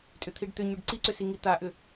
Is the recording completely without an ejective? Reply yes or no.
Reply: no